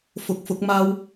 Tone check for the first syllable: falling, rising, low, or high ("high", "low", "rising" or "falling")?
rising